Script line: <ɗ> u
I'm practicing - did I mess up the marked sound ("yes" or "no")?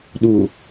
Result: no